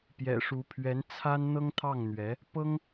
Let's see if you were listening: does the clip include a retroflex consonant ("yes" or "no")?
yes